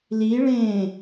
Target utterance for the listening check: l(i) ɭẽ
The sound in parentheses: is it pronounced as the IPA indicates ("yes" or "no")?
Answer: yes